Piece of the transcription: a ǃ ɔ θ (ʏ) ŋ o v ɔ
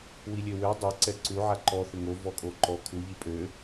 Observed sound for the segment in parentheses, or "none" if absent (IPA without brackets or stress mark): ʏ